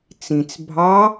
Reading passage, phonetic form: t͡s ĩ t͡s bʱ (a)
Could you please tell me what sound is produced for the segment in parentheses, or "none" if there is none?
ɑ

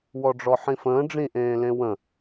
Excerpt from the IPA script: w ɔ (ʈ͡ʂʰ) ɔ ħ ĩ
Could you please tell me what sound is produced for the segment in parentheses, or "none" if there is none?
ɖ͡ʐ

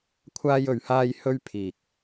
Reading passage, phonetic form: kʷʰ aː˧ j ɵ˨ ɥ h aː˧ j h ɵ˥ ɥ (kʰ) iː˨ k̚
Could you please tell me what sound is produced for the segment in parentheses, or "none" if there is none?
pʰ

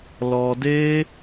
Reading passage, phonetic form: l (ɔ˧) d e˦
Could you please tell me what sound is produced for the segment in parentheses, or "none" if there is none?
ɔ˧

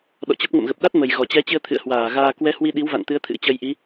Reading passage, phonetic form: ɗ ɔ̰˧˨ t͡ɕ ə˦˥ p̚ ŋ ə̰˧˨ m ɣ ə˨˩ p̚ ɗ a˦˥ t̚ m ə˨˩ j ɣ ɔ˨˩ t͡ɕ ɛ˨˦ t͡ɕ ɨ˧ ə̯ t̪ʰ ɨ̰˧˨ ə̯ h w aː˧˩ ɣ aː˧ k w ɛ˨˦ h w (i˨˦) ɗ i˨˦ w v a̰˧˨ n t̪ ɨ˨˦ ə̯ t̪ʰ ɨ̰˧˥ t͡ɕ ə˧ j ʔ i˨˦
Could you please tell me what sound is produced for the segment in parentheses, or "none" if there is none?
i˧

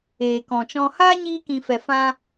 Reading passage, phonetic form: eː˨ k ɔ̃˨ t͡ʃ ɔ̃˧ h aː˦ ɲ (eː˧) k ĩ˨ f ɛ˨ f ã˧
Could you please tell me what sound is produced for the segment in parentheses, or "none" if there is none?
iː˧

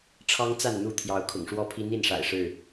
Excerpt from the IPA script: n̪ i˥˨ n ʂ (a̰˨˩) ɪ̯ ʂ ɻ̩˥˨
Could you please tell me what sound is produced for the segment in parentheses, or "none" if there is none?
a̰˨˩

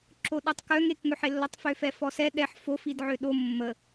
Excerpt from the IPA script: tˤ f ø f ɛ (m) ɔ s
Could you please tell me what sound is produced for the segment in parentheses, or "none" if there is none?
f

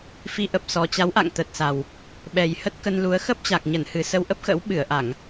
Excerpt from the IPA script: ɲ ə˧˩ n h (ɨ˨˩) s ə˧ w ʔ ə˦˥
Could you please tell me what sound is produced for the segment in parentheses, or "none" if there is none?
ɨ˨˩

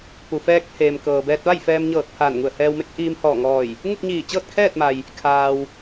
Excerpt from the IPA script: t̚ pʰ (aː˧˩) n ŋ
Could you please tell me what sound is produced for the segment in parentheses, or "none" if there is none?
aː˧˩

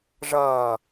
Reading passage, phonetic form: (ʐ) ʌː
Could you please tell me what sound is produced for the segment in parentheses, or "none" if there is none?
ʐ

